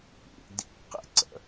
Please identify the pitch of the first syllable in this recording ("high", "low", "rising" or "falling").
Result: low